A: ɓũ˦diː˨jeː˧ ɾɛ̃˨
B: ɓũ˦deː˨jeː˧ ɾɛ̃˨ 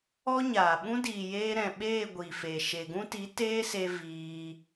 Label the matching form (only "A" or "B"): A